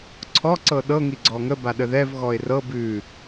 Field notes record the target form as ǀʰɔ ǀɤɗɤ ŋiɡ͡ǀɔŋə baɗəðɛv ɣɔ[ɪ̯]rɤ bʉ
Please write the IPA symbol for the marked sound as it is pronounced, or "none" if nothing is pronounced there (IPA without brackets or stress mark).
ɪ̯